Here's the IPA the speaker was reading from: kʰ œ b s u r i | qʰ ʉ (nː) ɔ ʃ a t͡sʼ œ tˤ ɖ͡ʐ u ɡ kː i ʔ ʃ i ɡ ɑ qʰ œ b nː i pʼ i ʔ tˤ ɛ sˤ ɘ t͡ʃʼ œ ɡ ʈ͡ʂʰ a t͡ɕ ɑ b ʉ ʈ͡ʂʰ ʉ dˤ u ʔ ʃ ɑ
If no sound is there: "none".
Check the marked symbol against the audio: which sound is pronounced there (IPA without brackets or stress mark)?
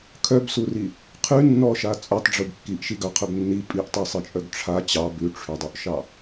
nː